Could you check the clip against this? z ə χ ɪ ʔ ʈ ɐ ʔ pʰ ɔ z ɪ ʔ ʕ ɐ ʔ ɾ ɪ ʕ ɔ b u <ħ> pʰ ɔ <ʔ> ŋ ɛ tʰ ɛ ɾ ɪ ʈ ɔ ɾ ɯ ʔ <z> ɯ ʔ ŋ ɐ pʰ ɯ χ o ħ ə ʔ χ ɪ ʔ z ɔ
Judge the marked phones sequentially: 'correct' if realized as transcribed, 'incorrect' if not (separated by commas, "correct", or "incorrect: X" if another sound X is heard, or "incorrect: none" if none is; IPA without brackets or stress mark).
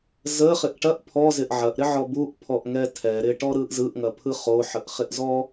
incorrect: ʔ, correct, correct